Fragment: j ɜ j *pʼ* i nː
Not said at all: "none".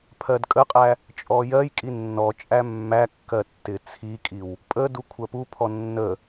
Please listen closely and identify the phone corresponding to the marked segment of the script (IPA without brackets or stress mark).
kʼ